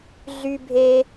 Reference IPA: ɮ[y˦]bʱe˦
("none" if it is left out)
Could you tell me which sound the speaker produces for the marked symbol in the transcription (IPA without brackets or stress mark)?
y˦